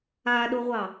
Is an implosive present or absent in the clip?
present